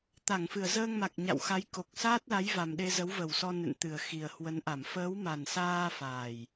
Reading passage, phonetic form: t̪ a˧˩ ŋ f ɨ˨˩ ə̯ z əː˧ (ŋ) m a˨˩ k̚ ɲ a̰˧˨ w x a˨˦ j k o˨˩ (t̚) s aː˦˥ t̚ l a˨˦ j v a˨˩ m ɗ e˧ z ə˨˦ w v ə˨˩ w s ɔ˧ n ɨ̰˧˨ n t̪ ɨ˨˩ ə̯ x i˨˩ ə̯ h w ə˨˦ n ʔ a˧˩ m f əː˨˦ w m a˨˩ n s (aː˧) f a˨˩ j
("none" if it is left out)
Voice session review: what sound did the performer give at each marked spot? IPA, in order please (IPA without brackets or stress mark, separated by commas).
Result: ŋ, k̚, aː˧